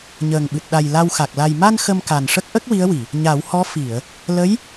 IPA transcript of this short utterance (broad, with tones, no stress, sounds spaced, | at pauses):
ɲ əː˨˩ ŋ ɓ ɨ˨˩ t̚ ɗ a˨˩ j l a˧ w x a˨˩ k̚ l a˨˩ j m a˧ n x ə˧ m k a˨˩ n ʂ ə˦˥ k̚ ʔ ə˦˥ k̚ w i˧˥ ə̯ w i˨˩˨ | ɲ a˨˩˦ w h ɔ˧˥ f i˨˩˨ ə̯ | l ə˧˥ j